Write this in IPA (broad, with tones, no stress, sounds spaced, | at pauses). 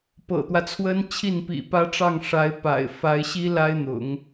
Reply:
p ɤ̰˨˩ t̪ w ä˦ t͡sʰ w ə˥ n t͡ɕʰ i˥˩ n p ḭ˨˩ p ä˥ ʈ͡ʂ ɑ˥˩ ŋ ʂ a˧˥ ɪ̯ p a̰˨˩ ɪ̯ f a˧˥ ɪ̯ ɕ i˥ l a˥ ɪ̯ n̪ ʊ̰˨˩˦ ŋ